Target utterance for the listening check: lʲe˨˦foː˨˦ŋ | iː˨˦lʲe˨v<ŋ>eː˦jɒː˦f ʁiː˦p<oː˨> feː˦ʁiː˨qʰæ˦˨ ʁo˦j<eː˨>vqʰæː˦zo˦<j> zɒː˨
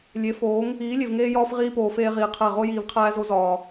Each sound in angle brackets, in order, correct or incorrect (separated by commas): correct, correct, incorrect, incorrect